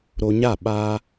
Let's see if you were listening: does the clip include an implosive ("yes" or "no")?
yes